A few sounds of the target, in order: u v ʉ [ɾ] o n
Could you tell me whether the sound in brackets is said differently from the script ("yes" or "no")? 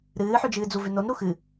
yes